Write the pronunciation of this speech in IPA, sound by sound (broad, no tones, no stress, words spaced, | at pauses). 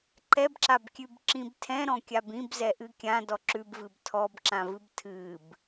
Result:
ǃɛbǁabkʲʉb ǁĩbtʰɛ̃ ɾɔ̃kʲabĩb zɛʔɨkʲã dɔǁʉbvɨb tʰɔbǁãvɨb tʰɨb